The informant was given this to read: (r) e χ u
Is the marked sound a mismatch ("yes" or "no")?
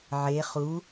yes